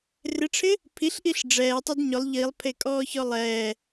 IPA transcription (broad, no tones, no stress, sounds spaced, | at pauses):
r ɪ ʈ͡ʂʰ ɪ | pʰ i ɬ ʔ i ɬ ɖ͡ʐ ɛː tˤ ʊ d ɲ ʊ lˠ ʎ i lˠ pʰ e kʼ ɔː ç ɔ lˠ ɛː